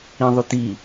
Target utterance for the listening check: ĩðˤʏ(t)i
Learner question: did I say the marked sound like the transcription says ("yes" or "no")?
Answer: yes